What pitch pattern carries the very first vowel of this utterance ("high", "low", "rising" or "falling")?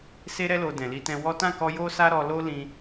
high